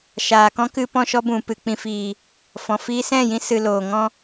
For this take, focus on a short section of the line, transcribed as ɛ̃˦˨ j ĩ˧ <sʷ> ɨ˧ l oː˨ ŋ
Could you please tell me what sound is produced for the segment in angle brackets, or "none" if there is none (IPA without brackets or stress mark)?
s